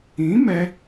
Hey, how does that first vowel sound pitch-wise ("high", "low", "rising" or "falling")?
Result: rising